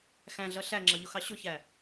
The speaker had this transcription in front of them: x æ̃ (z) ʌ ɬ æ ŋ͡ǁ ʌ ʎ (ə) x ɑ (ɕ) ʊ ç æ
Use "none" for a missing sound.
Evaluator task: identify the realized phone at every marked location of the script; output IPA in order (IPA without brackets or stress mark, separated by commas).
ɮ, ʊ, ɕ